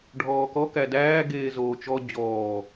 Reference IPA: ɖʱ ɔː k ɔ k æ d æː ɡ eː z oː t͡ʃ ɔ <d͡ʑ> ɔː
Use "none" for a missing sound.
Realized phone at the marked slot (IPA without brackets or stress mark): d͡ʑ